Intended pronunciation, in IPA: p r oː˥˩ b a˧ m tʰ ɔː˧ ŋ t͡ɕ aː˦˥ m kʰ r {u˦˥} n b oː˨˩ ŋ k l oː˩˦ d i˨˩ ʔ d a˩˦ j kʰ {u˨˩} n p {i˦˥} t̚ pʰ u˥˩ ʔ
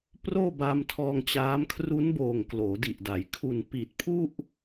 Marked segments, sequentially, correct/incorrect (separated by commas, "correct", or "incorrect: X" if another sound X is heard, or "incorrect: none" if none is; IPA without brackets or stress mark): correct, correct, incorrect: i˨˩